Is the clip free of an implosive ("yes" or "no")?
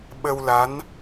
no